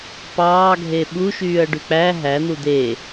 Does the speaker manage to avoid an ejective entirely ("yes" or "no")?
yes